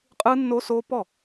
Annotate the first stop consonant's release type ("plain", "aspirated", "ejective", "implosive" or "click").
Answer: ejective